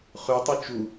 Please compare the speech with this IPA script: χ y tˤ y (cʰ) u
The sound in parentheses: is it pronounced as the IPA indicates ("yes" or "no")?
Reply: no